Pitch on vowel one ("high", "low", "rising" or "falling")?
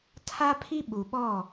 high